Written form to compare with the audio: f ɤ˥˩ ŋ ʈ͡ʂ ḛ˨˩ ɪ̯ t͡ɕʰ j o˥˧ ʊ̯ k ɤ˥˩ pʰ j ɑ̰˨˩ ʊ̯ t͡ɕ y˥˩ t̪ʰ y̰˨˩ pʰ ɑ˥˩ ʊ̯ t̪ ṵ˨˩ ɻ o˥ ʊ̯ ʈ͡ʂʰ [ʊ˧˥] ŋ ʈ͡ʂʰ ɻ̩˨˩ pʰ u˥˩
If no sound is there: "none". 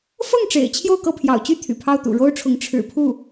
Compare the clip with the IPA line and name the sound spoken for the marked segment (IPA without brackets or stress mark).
ʊ˧˥